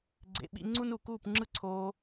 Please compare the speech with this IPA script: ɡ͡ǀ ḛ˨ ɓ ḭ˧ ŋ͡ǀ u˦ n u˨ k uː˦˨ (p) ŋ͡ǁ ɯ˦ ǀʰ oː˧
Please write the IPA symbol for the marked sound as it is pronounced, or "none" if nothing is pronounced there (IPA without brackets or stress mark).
p